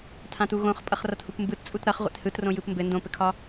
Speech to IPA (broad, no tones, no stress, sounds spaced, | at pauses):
tʰ ã t u ɣ õ χ pʼ ʌ χ r ʌ t h u p m b ɯ t t͡sʼ u t ɾ ʌ χ ʁʷ ḛ t h ɯ t r õ j ɯ p m b ɘ n d õ p ɘ kʰ ɒ